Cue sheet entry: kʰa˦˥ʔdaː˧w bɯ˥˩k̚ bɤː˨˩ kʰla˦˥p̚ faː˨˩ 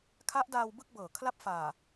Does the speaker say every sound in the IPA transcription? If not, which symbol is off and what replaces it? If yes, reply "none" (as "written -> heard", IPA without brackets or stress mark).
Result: none